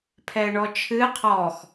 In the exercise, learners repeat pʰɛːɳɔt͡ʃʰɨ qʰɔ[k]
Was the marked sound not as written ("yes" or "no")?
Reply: yes